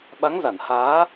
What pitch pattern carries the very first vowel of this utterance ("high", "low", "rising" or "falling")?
rising